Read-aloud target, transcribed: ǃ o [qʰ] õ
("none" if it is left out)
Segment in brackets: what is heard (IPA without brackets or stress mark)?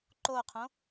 qʰ